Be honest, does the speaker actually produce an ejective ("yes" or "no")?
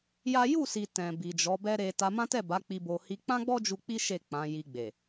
no